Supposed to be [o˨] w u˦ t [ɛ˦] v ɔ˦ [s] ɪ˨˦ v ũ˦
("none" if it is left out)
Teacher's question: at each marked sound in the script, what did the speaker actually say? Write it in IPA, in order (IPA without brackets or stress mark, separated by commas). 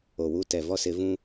o˨, ɛ˨, s